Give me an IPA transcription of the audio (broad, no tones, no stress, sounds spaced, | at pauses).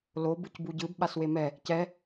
l o b ɯ c b u ɟ ɯ b ɓ a s w e m ɛ | c ɛ